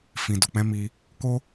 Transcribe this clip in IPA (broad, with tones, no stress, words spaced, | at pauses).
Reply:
fĩ˨do˨k͡pɛ̃˨˦mi˧ | ko˦